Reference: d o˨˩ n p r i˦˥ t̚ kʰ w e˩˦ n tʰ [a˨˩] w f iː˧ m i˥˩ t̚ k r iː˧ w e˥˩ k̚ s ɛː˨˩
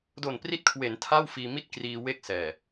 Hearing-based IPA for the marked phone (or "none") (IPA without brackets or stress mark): a˥˩